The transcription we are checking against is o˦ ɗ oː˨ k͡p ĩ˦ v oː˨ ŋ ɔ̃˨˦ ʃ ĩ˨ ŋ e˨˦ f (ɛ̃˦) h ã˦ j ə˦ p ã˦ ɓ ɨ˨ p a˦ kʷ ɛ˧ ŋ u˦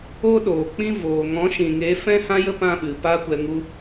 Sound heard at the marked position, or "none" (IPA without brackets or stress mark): ɛ̃˦